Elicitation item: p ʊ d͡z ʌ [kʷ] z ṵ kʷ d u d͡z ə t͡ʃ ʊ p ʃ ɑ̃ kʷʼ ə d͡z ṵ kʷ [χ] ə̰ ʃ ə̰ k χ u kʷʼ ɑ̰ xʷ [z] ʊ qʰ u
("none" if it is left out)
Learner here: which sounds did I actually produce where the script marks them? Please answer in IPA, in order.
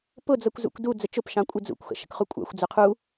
kʷ, x, d͡z

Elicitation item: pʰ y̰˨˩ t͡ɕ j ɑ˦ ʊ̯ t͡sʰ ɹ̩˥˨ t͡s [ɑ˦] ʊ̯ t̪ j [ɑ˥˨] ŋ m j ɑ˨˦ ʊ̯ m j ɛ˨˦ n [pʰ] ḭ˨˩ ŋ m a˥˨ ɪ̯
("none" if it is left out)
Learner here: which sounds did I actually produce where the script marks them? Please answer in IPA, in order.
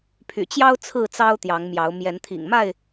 ɑ˦, ɑ˨˦, t̪ʰ

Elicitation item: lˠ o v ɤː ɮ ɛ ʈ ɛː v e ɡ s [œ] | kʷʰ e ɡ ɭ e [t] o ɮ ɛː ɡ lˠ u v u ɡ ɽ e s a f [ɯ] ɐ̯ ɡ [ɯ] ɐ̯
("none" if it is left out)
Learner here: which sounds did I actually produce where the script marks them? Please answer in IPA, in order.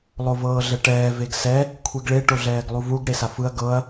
ɛ, ʈ, ɯ, ɤ

